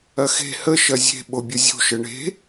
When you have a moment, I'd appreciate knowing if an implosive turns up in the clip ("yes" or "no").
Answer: yes